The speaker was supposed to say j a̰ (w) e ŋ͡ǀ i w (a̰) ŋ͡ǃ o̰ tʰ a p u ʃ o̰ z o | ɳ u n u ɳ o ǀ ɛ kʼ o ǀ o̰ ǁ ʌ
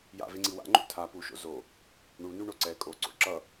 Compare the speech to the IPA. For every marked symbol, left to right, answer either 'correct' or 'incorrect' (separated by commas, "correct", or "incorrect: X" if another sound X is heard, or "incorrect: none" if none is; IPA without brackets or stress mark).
incorrect: v, correct